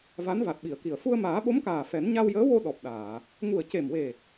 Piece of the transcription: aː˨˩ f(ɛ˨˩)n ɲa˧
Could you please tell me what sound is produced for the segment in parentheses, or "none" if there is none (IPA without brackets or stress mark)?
ɛ˨˩˦